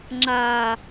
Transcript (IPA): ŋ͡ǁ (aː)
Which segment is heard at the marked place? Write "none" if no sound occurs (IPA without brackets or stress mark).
aː